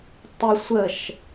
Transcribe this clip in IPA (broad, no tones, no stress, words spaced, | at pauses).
tˤɪ sʷəʃ